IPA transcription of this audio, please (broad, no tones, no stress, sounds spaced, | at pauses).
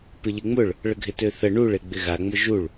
p ɪ ʎ ɪ ŋ͡m ʊ ɭ | ɭ ə ɡʱ ɪ t ø θ ə ɳ u ɭ e ɡ͡b ɪ ɣ a ŋ͡m ʊ ʒ u ɭ